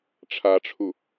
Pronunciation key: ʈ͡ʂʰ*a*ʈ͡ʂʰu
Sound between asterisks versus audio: correct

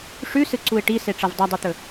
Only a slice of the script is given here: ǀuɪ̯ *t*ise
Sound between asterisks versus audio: incorrect: ʈ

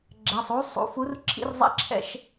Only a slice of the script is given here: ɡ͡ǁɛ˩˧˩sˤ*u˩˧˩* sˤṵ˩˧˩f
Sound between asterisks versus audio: incorrect: u˨˥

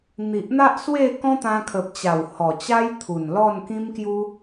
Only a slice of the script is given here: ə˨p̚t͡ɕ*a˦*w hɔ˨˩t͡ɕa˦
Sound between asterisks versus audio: incorrect: a˨˩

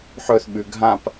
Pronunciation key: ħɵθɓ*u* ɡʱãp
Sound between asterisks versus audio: incorrect: ʉ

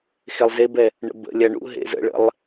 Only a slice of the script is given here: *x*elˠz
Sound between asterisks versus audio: correct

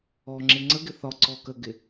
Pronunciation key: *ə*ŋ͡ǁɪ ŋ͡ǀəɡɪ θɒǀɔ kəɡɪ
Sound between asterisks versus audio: incorrect: ɔ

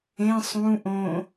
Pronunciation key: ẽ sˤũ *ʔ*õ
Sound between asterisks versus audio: correct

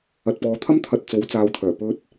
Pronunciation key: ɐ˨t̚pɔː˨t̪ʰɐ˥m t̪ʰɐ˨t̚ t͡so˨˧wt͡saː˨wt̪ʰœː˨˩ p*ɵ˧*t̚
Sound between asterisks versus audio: correct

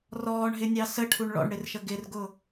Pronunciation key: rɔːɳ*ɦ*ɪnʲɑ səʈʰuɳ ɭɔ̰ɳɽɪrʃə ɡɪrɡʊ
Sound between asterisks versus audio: correct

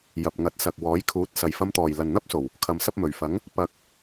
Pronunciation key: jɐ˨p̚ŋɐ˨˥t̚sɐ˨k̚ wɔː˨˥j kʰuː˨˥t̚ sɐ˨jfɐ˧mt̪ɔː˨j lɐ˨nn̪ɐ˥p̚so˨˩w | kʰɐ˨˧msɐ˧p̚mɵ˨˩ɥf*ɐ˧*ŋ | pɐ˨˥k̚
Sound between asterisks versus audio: incorrect: ɐ˨˥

